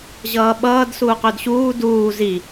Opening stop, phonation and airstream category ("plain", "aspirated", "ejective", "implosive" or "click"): implosive